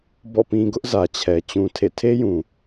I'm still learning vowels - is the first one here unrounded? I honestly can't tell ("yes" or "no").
no